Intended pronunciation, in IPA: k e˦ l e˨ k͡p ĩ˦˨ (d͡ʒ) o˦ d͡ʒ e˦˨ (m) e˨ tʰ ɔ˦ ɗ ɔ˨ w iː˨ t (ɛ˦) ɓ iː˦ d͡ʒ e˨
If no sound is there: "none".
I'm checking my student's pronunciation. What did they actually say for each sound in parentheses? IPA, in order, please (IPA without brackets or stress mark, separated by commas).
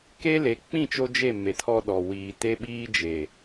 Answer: t͡ʃ, m, e˦